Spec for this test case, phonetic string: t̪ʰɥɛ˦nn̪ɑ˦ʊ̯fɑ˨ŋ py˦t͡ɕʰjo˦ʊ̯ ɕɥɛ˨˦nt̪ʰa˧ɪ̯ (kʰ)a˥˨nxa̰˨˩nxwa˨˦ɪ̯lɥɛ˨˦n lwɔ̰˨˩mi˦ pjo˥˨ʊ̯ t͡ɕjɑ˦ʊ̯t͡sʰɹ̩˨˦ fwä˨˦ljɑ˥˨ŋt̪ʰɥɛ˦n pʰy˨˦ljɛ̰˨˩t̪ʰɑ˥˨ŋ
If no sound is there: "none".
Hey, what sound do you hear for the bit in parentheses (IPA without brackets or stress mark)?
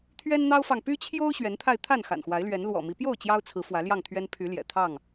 t̪ʰ